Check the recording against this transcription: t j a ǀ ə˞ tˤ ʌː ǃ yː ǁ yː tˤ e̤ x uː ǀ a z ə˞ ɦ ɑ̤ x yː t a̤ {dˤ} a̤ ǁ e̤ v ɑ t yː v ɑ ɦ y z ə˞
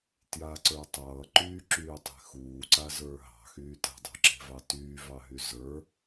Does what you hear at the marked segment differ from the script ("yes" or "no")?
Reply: no